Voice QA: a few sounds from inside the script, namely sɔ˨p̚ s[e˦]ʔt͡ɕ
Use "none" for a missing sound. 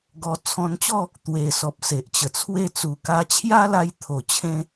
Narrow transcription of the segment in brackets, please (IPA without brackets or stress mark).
e˨